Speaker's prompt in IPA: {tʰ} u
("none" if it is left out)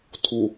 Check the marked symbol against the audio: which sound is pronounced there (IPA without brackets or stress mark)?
tʰ